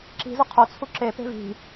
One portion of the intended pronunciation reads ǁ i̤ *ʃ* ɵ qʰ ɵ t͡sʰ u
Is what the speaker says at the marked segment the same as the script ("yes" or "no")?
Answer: no